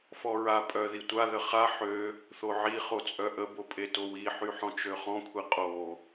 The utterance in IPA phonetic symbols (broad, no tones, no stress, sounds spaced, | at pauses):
f ɔ ɹ a pʼ œ ð i tʷ a ð ə χ a ħ ø | θ o ʕ i χ o t͡sʼ œ ʔ ə b o pʼ e t o w i ħ y ħ ɔ̃ t͡ʃ ø χ ɔ̃ kʷʰ i qʼ o